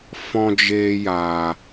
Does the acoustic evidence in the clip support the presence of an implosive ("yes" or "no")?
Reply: no